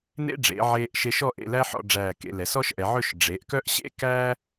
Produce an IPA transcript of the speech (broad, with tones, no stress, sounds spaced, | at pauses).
n ḛ˥ ɖ͡ʐ ḛ˩˧ ʕ eː˧ ʔ ʃ e˧ ʃ ɔ˥˧ ʔ ḛ˥˧ l æ˥ ħ ɔ̰˧ ɖ͡ʐ æː˧˩ k ḛ˩˧ l ɛ˩˧ s ɔ˥ ʃ ʔ ɛ˩˧ ʕ ɵ˥˧ ʃ ɖ͡ʐ e˩˧ ʔ k œ˥ ʔ ɕ ḛ˥ k æː˥